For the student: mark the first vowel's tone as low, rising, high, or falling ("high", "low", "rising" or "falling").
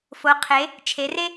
rising